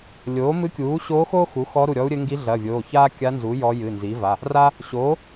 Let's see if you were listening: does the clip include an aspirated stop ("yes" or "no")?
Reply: no